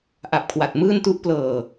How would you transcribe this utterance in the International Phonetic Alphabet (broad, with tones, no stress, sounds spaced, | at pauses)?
ʔ a˨˩ p̚ kʰ w a˨˩ t̚ m ɯː˥˩ n t u˥˩ ʔ p l ɤː˨˩